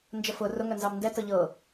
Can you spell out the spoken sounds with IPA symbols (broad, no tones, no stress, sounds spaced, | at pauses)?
n d͡ʒ ə f ʊ r ʊ ŋ œ n z ɑ m n d ɛ t ɤ ʎ ɤ